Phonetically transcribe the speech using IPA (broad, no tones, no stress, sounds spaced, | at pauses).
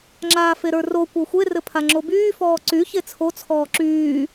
ŋ͡ǁ aː f e ɾ ə˞ r o kʷ ə˞ xʷ e r ɘ pʰ a ŋ͡ǁ o b yː f ɔː ǀ y ç e t͡sʰ o t͡sʰ ɔː ǁ yː